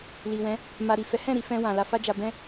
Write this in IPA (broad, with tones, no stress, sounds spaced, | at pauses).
l i˨ w ɛ̃˨˦ | m a˨ ɾ i˨ f ɛ˨˦ h ɛ̃˦˨ ɾ i˧ f ɛ̃˧ w ã˨ l a˧ f a˦ d͡ʒ a˧ b ɛ̃˦